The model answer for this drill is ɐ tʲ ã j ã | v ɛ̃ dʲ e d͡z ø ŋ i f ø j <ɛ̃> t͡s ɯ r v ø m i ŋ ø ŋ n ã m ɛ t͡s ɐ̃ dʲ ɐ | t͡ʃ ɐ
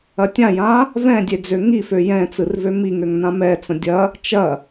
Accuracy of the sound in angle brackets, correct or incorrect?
correct